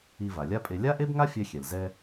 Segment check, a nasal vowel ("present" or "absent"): absent